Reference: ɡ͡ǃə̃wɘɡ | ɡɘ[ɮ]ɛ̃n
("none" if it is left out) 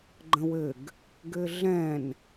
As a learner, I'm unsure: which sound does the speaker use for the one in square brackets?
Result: ɮ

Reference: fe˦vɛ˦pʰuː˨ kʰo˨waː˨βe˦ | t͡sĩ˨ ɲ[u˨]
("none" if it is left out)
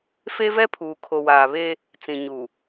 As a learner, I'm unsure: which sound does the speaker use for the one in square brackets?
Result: u˨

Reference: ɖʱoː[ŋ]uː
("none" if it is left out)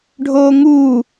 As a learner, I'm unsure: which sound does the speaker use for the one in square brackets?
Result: ŋ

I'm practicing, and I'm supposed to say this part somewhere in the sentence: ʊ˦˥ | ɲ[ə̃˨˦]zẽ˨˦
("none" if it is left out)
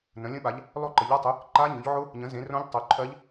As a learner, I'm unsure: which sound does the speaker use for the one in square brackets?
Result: ə̃˨˦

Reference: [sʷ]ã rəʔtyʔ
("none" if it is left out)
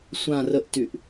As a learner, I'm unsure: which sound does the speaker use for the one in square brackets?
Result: sʷ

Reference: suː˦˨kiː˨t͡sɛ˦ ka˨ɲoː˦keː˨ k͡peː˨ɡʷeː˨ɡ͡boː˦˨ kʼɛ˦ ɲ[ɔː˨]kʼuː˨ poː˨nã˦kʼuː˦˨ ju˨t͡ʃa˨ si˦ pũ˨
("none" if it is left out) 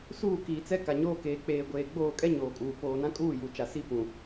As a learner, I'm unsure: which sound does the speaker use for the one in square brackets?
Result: oː˨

